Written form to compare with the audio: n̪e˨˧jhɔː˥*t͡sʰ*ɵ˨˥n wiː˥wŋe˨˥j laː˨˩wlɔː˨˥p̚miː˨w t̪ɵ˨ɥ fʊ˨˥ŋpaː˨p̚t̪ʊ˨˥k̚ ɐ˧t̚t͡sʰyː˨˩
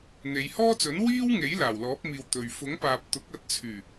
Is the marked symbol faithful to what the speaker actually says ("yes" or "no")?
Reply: no